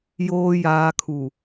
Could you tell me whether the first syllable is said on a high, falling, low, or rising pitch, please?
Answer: low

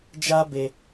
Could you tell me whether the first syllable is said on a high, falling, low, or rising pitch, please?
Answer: high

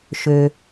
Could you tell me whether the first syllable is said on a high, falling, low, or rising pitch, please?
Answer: low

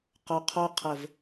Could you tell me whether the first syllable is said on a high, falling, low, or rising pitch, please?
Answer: low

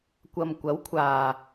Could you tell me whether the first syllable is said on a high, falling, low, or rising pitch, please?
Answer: low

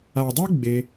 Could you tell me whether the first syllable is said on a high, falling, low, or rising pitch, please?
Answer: low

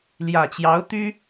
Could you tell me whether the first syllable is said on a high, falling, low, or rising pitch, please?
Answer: low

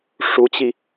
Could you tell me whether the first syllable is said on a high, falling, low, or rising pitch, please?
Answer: rising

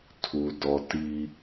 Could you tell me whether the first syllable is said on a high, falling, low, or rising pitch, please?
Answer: low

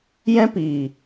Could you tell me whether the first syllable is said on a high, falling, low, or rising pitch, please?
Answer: high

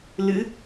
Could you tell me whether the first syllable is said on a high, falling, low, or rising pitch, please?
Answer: rising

